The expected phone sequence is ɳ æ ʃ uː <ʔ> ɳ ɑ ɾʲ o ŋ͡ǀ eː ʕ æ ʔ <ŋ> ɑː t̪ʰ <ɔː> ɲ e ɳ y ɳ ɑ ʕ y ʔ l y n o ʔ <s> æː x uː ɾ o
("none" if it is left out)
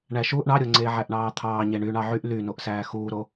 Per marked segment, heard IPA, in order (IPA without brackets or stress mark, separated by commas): ʔ, ɳ, ɑː, s